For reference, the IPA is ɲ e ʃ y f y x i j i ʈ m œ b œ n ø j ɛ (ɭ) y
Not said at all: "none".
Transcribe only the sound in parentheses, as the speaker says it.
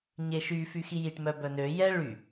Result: ɭ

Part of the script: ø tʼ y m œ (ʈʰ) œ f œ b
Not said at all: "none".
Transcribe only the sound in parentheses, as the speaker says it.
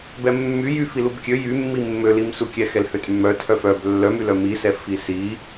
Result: tʰ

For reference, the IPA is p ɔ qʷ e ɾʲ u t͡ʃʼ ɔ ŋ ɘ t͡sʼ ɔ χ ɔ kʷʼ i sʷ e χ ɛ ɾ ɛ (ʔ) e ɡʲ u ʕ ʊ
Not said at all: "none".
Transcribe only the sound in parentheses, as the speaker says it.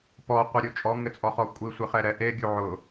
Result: ʔ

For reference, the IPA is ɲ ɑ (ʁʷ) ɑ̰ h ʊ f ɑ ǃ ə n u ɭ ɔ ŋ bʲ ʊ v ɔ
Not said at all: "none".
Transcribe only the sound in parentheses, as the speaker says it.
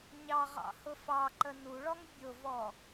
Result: ʁ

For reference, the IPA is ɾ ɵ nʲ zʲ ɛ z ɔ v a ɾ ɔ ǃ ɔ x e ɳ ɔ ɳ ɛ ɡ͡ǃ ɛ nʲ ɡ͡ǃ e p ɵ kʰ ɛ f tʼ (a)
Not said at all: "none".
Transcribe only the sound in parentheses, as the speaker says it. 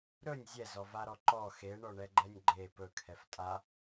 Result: a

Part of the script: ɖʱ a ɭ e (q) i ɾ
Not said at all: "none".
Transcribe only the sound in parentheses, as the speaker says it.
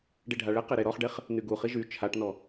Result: q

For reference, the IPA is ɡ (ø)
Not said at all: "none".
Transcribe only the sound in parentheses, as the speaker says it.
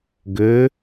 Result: ø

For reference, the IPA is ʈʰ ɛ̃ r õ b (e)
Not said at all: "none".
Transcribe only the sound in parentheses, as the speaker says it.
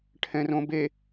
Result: e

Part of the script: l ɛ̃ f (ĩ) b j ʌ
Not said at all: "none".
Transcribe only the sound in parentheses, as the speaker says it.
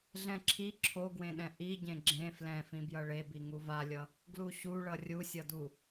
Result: ĩ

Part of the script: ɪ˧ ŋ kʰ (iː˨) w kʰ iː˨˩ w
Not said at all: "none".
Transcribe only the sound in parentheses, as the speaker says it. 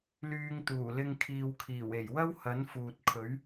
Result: iː˨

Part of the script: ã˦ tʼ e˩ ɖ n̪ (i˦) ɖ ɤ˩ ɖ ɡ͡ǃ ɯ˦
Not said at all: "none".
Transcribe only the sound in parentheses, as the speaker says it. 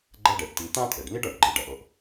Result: i˦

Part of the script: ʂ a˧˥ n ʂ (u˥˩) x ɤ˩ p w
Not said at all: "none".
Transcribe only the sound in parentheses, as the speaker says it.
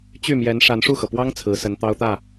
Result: u˥˩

